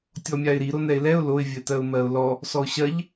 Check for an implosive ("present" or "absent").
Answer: absent